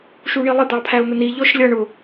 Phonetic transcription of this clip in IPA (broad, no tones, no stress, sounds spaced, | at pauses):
ʃ u ɳ i lˠ ɪ d̪ ɑ pʰ æ ʊ̯ n̪ ə n i ʎ ɔ ʃ lʲ ʌ ɳ ʊ